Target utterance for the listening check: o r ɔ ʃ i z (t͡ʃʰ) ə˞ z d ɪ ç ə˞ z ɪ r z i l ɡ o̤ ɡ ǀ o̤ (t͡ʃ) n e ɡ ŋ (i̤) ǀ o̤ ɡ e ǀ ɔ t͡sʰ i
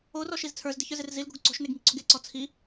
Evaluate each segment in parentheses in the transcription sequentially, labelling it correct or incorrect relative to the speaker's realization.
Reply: incorrect, incorrect, correct

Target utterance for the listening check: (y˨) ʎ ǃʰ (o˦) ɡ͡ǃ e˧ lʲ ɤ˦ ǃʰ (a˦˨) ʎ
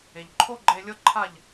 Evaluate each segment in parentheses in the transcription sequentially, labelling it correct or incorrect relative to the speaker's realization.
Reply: incorrect, correct, correct

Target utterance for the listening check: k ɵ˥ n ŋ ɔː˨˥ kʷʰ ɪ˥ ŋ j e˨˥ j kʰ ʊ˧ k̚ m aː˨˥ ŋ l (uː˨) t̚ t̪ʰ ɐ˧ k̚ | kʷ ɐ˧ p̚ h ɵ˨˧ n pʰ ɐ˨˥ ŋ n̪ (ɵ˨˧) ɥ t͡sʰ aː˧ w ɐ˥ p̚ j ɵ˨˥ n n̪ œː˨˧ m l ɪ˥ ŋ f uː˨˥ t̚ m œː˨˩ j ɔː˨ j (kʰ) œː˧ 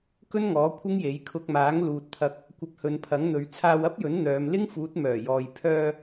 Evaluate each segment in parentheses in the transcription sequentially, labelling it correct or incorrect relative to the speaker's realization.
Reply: correct, correct, incorrect

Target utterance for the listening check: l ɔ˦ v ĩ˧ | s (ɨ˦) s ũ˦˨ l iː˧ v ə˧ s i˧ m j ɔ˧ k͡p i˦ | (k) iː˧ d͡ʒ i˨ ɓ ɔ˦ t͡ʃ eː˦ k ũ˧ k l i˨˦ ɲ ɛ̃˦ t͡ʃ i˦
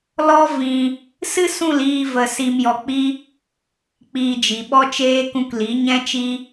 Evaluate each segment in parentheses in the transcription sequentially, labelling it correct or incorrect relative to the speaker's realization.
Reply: correct, incorrect

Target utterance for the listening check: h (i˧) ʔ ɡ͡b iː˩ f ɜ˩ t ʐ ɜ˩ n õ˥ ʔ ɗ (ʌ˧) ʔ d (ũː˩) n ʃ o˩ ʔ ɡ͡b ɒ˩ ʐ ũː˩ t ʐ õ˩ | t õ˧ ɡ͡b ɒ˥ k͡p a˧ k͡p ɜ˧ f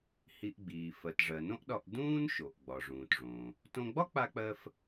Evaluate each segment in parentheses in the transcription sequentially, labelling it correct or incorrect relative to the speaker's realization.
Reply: correct, incorrect, incorrect

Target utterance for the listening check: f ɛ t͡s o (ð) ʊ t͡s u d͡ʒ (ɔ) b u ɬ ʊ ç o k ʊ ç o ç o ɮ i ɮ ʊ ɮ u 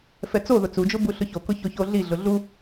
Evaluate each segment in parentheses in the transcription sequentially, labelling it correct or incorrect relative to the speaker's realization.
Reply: correct, incorrect

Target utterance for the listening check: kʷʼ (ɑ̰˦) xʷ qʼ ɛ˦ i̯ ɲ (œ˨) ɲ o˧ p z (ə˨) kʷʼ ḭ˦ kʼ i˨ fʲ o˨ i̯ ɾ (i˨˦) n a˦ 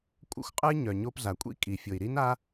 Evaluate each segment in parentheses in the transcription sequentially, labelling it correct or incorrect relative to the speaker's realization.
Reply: incorrect, correct, incorrect, incorrect

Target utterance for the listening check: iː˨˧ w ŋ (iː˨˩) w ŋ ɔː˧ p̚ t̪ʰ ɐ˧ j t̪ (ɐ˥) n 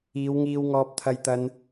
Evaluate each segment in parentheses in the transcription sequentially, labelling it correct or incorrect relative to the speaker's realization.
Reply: incorrect, incorrect

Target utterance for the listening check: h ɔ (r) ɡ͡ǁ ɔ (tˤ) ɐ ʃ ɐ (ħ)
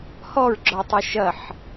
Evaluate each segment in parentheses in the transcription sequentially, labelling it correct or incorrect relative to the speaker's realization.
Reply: incorrect, correct, correct

